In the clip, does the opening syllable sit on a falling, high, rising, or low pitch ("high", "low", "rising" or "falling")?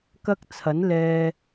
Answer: high